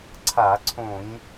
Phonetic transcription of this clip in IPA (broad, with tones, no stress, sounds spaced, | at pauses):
ǀʰ a˧˩˧ ǀʰ õ˧˩˧ ɲ